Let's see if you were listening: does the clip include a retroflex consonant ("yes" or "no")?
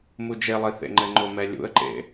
no